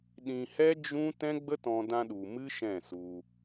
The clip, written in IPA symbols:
ɗĩ˧hɛ˦ d͡ʒũ˦ tɛ̃˦ɡ͡bə˦tɔ̃˧ dã˧ɗu˨ mɨ˦ʃɛ̃˦˨su˧

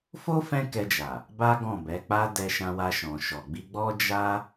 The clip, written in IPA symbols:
fo˦ fɛ̃˦kɛ˧d͡ʒa˨ | ba˦ɡɔ̃˦˨bɛ˨˦k͡pa˦ dɛ˧ʃã˧wa˧ʃɔ̃˨ ʃɔ˨ɡ͡bi˧ɡ͡bɔ˦ d͡ʒa˦

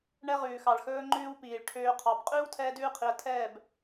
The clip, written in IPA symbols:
ɳɛ˦ ʁʉː˨xɑ˨ɭxɵː˧ŋ͡ǃʉː˧w piː˨ɭʈʰøː˧qʰɑ˨˦b qʼʉː˦wtʰɛː˧dʉː˧qʰi˨ə̯ tʰɛː˦˨b

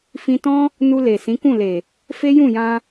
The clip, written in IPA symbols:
fĩ˧tɔ̃˦ | nu˧le˨ sĩ˨˦kũ˦˨le˨ | fe˦jũ˦˨jã˧

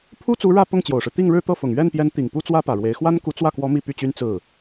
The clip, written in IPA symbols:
pʰu˥t͡su˧˥ ɻä˥˧pʊ˥˩ŋ t͡ɕjo˨˩ʊ̯ʂɻ̩˦ t̪i˥˧ŋɻɻ̩˥˧t̪ɤ˥˩fʊ˨˩ŋ ɥɛ˥˩npjɛ˧˥n t̪i˨˩ŋpu˥t͡swä˥ pä˨˩ɻwe˧˥ɪ̯ xwa˥nku˧˥t͡swä˥˩kwɔ˧˥ mi˥˧py˥˩t͡ɕy˥n t͡sɹ̩˥˩

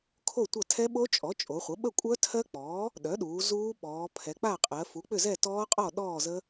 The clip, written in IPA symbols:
kʰo˥˨tʷɐ˥˨ tʰɛ˦˥ɓo˦˥ t͡ʃʼɔ˩˥t͡ʃʼo˩˧χʷə˩˥ ɓə˥˨ kʷʼœ˦˥tʰɜ˦˥k͡pɔː˩˥ | ɗœ˩˥ɗuː˩˧ zuː˦˥ɓɔː˩˧ pʰɛ˩˧k͡pa˥˨qʼɜ˩˧ fu˩˥k͡pʏ˥˨zɛ˥˨ tɔː˦˥qʼɔ˥˨ ɗɔː˥˨zə˦˥

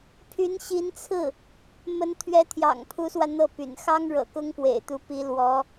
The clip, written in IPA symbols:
pʰy˧˥nɕi˧˥nt͡sʰɹ̩˥˩ | mə˧˥n t̪ʰɥɛ˧˥t̪ʰjɑ̰˨˩ŋ pʰu˧˥swä˧ n̪ɤ˥˩py̰˨˩n xɑ˥ŋɻɤ̰˨˩kʊ˥ŋ pwḛ˨˩ɪ̯t̪u˧˥pi˧˥ lwɔ˧˥

